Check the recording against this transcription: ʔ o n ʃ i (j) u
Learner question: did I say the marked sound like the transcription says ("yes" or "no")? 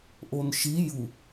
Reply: yes